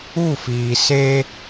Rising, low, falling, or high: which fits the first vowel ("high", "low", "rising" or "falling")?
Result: falling